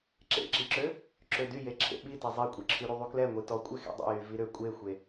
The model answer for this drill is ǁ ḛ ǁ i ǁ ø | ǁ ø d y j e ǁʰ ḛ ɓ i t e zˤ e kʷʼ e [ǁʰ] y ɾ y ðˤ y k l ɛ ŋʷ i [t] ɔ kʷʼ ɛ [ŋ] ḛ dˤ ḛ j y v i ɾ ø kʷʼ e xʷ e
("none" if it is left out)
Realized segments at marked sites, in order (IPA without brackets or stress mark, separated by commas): ǁʰ, t, x